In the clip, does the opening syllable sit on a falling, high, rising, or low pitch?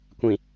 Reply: low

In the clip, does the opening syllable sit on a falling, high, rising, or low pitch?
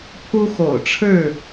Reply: high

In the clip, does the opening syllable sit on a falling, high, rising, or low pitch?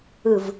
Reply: falling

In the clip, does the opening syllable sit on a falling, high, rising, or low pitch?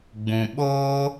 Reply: low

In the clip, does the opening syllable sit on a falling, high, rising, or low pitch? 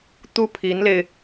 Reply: high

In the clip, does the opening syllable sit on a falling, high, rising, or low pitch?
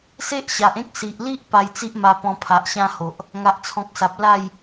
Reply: high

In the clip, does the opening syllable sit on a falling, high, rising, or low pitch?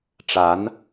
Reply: rising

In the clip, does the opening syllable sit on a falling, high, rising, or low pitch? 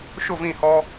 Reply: falling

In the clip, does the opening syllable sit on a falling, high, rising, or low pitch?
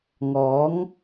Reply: rising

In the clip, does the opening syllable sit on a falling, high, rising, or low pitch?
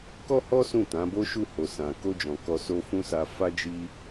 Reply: high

